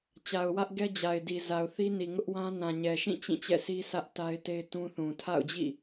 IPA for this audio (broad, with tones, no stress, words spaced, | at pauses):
t͡ɕa˨ʊ̯wä˦ʔ ɡɛ˦d͡ʑa˨ɪ̯di˨ za˨ʊ̯θi˦ni˨ ŋʊ˦ʔwã˦ nã˨ɲɛ˨ʃĩ˦˨ t͡ɕĩ˦˨t͡ɕɛ̰˦˨si˦ sʰä˦ʔ ta˦ɪ̯te˦ɪ̯tũ˦θũ˨ tʰa̰˦˨ʊ̯d͡ʑḭ˦˨